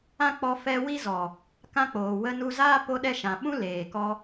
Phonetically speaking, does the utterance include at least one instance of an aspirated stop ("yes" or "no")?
no